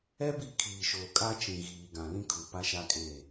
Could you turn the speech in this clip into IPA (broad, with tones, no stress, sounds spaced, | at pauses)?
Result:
ɛ˦ b i˦˨ kʰ iː˨ ʃ oː˨ kʼ a˦ t͡ʃ ĩ˨ ɣ iː˨ ɡ ã˨ l ĩ˦ kʰ u˨ p a˦ ʃ a˦ kʼ e˦˨